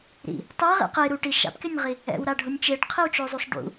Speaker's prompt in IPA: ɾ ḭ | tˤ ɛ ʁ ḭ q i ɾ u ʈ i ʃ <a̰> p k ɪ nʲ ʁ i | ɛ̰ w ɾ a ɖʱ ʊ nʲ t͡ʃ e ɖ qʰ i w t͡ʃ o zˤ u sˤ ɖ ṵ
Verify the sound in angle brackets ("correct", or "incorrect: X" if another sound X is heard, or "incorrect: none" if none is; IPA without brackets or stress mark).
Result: correct